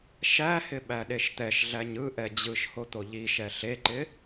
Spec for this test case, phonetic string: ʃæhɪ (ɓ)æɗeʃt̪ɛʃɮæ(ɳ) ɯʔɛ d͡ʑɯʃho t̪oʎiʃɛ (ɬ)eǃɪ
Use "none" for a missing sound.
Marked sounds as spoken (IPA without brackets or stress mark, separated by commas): ɓ, ɲ, ɬ